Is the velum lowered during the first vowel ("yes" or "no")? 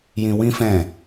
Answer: yes